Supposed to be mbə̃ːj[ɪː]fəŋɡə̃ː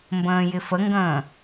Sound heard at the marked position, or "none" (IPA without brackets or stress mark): ɪ